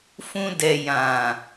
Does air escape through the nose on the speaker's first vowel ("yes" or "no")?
yes